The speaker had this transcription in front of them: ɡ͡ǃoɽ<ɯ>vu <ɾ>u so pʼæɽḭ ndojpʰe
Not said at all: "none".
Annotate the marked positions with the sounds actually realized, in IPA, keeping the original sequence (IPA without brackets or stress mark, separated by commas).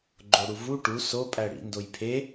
u, ʈ